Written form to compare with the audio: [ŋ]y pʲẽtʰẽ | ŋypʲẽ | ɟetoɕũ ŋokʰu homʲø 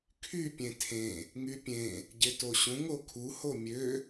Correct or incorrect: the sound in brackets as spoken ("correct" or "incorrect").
incorrect